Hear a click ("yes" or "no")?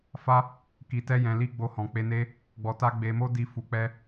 no